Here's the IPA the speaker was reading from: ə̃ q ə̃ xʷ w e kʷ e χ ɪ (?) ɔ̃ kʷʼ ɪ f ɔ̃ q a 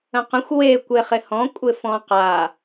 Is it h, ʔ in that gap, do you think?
h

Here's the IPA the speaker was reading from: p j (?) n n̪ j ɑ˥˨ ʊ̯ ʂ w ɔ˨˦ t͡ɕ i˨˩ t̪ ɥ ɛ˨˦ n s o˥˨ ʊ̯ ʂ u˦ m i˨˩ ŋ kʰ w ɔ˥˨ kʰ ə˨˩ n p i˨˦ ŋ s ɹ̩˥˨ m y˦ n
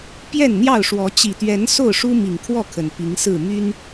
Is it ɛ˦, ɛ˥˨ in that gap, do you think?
ɛ˥˨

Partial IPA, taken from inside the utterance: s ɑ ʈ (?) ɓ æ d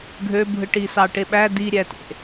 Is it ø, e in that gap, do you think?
e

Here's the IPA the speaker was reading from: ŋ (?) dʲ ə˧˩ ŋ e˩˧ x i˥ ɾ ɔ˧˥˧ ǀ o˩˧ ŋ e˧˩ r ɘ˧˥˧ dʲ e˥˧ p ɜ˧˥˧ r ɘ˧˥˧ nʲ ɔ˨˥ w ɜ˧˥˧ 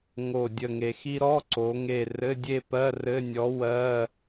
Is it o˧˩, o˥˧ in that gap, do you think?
o˧˩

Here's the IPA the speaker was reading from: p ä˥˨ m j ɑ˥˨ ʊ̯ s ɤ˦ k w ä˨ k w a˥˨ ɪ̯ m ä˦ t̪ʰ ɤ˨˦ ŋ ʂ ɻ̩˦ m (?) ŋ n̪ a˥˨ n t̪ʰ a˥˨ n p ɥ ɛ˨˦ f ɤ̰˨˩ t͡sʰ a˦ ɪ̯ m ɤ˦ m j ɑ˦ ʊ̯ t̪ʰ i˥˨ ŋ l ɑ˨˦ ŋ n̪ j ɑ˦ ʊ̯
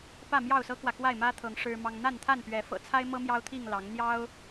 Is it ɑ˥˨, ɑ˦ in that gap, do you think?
ɑ˦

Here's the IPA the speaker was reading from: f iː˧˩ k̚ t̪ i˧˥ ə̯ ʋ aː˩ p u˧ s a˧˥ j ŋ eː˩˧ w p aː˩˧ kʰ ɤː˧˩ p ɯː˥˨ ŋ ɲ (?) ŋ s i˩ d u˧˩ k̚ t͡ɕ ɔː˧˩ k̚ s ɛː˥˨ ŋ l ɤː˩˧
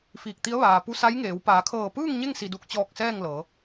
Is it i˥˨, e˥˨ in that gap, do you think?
e˥˨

